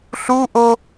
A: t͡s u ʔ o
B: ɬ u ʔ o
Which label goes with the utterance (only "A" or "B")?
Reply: B